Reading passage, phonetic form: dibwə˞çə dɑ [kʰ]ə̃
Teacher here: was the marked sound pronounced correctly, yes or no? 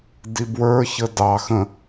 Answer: no